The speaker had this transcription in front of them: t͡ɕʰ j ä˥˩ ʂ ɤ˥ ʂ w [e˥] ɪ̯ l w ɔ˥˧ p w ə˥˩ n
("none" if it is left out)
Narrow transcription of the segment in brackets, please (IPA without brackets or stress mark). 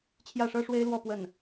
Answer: e˥